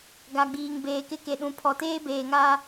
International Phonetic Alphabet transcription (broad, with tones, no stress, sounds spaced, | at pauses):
ɡ a˨ ɡ͡b iː˨ ŋ b eː˨ k ɪ˦ k e˨ ɗ ũ˨ pʰ ɔ˨ t eː˦ b eː˨ ŋ aː˦